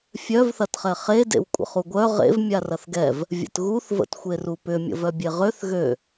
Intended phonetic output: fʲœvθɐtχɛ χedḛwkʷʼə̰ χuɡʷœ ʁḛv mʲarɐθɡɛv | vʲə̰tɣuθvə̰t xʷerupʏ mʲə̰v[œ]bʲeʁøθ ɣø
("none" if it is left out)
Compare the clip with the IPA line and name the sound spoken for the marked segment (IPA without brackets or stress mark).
œ